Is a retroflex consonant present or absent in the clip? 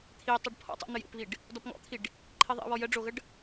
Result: present